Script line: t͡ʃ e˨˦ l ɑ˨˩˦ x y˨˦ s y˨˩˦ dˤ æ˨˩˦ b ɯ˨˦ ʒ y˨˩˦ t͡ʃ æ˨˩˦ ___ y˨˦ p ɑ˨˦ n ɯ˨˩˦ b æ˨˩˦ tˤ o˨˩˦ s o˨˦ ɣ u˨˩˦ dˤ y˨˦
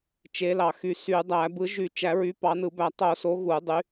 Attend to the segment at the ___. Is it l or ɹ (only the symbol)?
ɹ